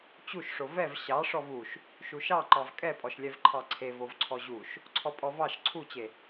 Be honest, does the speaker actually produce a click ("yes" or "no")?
yes